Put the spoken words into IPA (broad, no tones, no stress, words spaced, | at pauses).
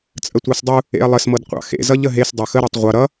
t͡sʼətʷɑsdˤu | ḛɐ̯lˠəsmɤdqʷɑ̰ xḛzʌʎ əɦes dˤɤxəɾutˤ ʁʷʌ ɾʌ